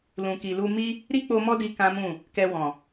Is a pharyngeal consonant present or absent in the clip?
absent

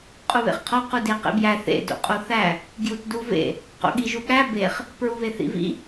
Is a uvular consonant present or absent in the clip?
present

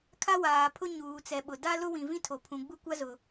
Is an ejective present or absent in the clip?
absent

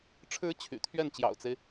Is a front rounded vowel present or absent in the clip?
present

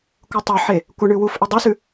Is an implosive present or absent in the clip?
absent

